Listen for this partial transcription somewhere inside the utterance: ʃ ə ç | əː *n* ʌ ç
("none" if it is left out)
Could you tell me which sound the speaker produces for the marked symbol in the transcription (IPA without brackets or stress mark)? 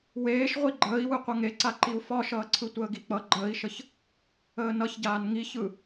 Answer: n